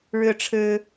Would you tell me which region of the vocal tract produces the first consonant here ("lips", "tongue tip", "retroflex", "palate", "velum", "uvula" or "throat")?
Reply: retroflex